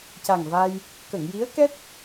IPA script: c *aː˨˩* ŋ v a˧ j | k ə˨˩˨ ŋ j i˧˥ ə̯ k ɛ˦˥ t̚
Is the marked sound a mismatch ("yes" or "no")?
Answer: yes